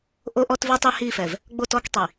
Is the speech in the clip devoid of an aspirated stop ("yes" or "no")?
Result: yes